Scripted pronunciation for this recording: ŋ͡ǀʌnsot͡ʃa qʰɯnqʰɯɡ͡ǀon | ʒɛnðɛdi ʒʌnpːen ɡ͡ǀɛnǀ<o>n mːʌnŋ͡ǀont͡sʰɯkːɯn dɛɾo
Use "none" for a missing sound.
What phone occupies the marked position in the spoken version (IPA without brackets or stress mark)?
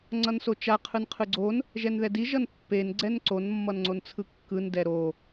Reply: o